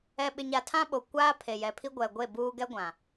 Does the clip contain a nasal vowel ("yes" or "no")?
yes